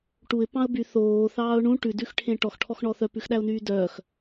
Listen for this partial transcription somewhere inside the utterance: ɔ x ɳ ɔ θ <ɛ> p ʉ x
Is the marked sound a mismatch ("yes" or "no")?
yes